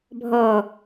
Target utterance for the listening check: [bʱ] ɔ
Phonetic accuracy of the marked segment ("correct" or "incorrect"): correct